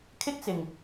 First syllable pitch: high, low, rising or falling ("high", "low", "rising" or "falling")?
high